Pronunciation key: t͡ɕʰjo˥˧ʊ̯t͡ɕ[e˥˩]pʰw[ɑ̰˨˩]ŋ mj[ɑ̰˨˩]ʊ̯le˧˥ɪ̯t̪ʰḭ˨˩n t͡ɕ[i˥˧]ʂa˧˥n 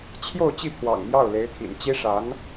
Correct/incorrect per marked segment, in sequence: incorrect: i˥˩, correct, incorrect: ɑ˥˩, incorrect: i˥

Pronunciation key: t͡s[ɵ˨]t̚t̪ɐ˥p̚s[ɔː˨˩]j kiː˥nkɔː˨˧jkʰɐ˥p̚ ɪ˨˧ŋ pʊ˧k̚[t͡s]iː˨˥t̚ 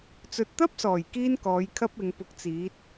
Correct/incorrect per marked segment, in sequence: correct, correct, correct

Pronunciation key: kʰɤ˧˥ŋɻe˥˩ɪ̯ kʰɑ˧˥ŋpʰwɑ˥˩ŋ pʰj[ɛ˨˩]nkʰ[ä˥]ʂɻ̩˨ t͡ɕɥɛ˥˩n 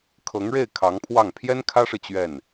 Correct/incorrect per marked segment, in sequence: incorrect: ɛ˥, correct

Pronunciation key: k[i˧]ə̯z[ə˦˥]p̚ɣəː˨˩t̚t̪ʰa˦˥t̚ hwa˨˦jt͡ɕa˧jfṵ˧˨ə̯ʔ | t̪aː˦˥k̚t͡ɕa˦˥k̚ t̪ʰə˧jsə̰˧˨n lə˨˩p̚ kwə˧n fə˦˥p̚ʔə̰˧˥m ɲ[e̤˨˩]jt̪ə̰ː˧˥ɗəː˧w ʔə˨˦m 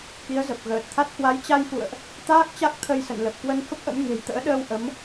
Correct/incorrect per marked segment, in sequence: incorrect: i˨˦, incorrect: ə˨˩, correct

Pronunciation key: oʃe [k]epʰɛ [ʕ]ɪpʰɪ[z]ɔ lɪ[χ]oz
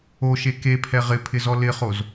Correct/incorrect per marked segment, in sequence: correct, incorrect: ʁ, correct, correct

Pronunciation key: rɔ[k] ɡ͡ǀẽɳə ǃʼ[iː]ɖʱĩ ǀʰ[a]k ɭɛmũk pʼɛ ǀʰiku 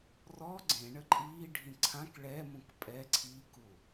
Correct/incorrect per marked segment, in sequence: incorrect: none, correct, incorrect: ã

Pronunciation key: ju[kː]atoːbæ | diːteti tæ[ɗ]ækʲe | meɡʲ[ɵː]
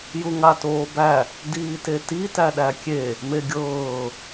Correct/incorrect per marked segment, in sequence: incorrect: ŋ, correct, incorrect: ɤː

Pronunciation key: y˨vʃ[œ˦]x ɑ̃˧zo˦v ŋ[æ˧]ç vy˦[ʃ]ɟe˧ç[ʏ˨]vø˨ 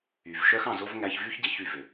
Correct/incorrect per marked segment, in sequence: correct, correct, incorrect: ç, incorrect: y˨

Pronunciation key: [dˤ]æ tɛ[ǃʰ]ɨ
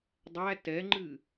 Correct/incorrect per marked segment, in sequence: correct, incorrect: ŋ͡ǃ

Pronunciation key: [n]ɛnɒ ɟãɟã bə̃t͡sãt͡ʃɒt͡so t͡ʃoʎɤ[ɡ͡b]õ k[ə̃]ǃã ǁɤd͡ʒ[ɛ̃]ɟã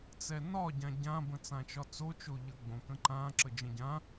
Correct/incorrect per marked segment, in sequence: incorrect: t͡s, correct, correct, incorrect: ə̃

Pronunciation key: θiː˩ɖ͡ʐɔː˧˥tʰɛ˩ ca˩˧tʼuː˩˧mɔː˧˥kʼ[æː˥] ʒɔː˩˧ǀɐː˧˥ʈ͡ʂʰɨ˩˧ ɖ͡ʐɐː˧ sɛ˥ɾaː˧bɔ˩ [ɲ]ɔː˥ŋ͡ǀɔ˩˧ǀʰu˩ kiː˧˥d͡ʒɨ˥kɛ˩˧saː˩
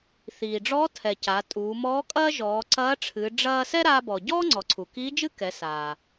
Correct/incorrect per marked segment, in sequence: incorrect: ɐː˥, incorrect: ɟ

